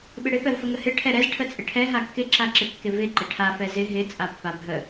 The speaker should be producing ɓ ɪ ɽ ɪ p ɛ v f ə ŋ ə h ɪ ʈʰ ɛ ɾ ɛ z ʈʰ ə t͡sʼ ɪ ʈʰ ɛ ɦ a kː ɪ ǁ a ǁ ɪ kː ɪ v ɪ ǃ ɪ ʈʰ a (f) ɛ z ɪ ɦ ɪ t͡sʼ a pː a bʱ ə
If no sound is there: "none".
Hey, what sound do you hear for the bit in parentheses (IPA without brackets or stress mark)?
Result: f